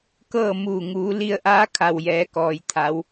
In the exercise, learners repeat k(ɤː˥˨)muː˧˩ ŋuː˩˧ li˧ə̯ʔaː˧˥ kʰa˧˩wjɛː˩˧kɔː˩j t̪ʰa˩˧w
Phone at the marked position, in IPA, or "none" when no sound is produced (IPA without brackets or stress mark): ɤː˥˨